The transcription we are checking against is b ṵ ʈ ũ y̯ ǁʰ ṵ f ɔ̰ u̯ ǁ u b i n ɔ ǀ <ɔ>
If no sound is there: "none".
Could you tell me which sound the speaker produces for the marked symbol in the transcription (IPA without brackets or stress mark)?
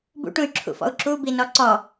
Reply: ɔ